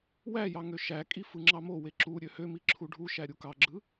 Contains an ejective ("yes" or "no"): yes